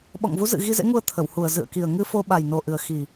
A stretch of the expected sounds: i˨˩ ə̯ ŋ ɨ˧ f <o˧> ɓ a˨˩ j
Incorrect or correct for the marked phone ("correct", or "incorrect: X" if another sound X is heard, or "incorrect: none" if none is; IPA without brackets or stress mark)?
correct